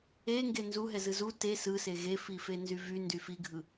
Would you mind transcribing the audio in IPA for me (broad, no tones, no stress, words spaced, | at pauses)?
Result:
eŋɡe nzuɦɛzɯ zu te sɯse ɣefifenzy vyndy fiɡʱɯ